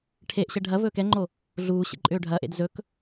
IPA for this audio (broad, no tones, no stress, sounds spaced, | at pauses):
ʈʰ e ʔ ɕ ɛ ɖʱ ɐ v ɵː k ɛ ŋ͡ǃ o | ɮ uː ɕ ḛ ǃʼ ʏː ɖʱ ɐ ʔ ḛ d z ɵ k